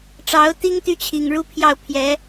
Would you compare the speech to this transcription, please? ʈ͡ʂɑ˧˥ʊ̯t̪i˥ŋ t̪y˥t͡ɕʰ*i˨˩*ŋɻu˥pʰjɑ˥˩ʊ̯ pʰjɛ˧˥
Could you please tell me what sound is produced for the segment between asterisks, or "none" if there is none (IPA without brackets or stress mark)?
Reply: i˨˩